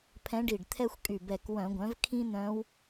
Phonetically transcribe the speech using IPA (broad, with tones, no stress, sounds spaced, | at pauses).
pʰ ɛ̃˧˥ ɖ i˧˩ ɖ t̪ʰ ɛ˥ xʷ kʼ y˧˩ b ɛ˧˩ k w œ̃˧˩˧ ɡʷ œ̃˩˥ v kʰ ĩ˥ n̪ œ̃˧˥ w